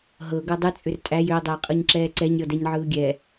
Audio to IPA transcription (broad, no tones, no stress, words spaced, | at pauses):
ɦɤ ɡɤdˤɯ t͡sʼʏrtʼæj ʏo̯ dˤɛe̯qʼɤɲǁɛːǀɛɲ ɾʲɔdɛɲʕɯːɡʲɛ